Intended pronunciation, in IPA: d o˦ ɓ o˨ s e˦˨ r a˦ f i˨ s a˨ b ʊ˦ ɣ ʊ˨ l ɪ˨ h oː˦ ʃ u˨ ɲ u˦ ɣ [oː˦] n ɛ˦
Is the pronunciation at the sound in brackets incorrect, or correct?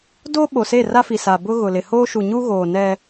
incorrect